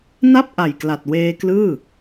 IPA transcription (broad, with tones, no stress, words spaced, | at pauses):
na˥˩p̚ʔa˨˩jkla˨˩t̚ weː˧klɯː˥˩